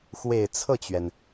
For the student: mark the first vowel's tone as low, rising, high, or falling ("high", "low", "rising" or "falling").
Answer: low